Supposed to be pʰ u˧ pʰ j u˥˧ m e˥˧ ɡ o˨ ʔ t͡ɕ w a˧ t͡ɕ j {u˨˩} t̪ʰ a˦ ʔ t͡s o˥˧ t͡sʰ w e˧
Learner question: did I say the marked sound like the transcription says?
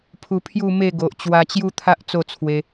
no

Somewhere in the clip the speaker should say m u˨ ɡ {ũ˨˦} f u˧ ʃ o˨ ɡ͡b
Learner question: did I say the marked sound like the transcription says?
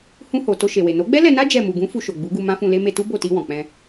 yes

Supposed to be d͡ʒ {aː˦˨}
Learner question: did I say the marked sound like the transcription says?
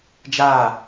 yes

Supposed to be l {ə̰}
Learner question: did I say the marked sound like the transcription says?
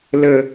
no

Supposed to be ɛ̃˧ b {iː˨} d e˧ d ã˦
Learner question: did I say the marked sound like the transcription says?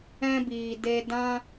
yes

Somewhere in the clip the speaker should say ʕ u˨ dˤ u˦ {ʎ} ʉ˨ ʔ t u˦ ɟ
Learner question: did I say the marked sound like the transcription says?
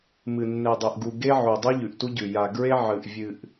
yes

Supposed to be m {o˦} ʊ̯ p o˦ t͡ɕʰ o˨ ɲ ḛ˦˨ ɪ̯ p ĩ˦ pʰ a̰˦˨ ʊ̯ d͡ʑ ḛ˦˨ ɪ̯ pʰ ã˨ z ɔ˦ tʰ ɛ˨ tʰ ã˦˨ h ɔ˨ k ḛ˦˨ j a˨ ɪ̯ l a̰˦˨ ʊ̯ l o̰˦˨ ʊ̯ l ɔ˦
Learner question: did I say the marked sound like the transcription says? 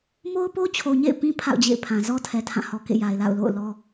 yes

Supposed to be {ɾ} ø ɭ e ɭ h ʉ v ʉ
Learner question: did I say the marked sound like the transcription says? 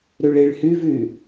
yes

